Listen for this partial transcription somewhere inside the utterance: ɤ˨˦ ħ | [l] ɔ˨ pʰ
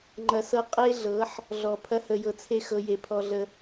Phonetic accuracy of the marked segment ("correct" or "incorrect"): incorrect